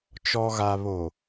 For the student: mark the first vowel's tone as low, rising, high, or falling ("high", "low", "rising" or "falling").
low